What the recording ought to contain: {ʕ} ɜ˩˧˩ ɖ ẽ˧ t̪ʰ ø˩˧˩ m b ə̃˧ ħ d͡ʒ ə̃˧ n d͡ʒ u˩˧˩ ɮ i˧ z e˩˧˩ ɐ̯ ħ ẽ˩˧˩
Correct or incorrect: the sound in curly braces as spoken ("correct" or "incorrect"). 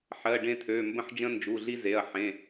incorrect